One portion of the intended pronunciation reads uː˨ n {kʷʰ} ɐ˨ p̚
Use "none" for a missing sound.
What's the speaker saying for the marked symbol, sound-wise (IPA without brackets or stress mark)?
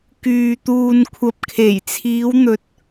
kʷʰ